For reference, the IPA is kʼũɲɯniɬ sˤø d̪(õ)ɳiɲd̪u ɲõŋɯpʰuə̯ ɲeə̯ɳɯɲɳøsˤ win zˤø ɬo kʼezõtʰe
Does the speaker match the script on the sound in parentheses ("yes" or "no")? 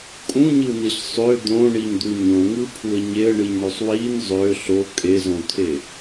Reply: yes